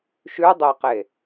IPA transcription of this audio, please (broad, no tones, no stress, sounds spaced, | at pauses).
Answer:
ʃ ʉ dˤ ɛ q e